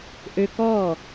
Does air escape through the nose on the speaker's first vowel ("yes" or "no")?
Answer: no